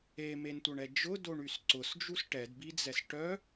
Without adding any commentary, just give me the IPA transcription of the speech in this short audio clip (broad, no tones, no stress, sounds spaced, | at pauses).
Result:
e m e n tʷ œ ɳ ɛ d͡ʒ ʊ d o ɳ y s ǀ ʊ s d͡ʒ u s ʈ ɛ d b i d͡z ɛ s ʈ œ